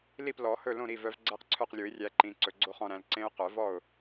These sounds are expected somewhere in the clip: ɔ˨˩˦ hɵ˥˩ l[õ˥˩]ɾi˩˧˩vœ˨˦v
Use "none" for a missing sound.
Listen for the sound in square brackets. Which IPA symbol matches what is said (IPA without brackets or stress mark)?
õ˥˩